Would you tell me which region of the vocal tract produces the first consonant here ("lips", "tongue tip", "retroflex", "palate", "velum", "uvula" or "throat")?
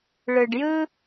retroflex